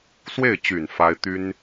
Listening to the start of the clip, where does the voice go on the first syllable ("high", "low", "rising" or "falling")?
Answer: falling